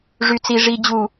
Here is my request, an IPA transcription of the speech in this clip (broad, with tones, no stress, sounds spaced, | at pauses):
ʐ y˨ t͡s i˨ ʐ i˨ d͡ʑ u˨